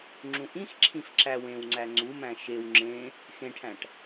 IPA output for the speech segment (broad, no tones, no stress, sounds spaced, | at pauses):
ŋ͡ǁ ũ ʔ ĩ x ǁʰ ĩ f ǁ æ w ẽ w ŋ͡ǀ æ ŋ͡ǀ u m æ̃ ʃ e w ŋ͡ǁ ẽ | x ẽ ʈʰ æ̃ ʈ